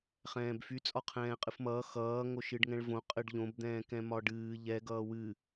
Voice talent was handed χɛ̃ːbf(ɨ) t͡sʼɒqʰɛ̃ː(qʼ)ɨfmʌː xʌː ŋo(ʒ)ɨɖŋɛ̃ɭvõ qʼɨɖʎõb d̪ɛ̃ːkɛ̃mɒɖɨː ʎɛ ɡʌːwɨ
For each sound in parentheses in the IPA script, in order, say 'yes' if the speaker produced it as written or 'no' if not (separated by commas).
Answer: no, yes, no